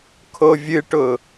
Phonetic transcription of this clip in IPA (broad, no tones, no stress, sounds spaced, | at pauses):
kʰ o vʲ ɨ ʈ ʊ